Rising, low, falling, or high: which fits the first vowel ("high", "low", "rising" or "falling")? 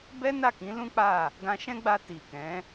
high